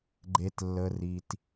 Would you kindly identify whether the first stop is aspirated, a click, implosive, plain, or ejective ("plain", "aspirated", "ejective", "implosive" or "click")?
click